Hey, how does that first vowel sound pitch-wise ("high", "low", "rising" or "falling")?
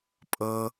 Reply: low